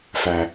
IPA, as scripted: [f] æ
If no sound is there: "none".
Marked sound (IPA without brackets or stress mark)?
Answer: f